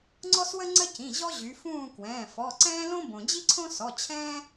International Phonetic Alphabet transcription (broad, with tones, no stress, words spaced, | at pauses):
ŋ͡ǀɔ˦swə˦ŋ͡ǀə˦ cĩ˩˧˩ʑɔ˦ʑy˩˧ fũː˦˨kwɛ̃ː˩˧˩fɔ˩˧˩ ǀɛ̃ː˦ lõ˦bõ˩d͡ʑi˦ǀʰõ˦ sɔ˩˧˩ t͡ɕʰɛ̃ː˦